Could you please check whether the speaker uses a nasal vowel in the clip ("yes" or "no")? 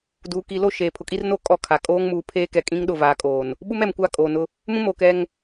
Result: yes